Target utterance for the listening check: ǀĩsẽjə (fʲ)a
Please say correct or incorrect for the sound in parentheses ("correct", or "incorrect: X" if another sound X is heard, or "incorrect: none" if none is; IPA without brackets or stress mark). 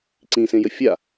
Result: correct